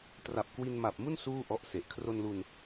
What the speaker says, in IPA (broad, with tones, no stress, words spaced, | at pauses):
tra˨˩p̚kwi˧nma˨˩p̚mu˥˩n suː˥˩ʔɔ˦˥ʔse˨˩ʔ kʰro˧nlu˧n